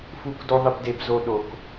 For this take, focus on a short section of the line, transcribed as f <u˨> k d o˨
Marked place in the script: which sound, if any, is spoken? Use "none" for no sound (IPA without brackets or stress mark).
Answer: u˨